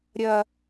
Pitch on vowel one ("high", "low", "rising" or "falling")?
high